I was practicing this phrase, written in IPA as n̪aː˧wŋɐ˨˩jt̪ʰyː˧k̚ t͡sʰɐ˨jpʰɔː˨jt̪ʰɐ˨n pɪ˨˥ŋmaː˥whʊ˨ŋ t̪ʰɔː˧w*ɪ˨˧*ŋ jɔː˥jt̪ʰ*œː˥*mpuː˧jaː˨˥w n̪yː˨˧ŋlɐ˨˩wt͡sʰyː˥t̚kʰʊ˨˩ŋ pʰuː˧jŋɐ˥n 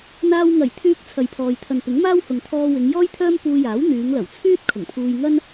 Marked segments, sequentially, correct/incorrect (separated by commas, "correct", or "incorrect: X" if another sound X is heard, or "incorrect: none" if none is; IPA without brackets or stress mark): correct, correct